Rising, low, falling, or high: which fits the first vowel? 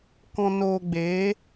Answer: low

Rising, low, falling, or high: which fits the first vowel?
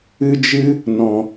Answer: high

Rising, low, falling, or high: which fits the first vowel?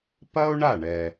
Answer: high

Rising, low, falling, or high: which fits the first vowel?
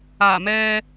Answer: low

